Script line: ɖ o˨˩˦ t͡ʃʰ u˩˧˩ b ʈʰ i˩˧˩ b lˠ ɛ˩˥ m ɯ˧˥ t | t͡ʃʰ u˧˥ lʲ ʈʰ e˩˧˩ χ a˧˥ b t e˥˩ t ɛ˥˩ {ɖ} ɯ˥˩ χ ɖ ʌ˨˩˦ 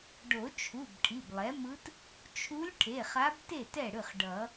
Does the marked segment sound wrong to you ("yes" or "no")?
yes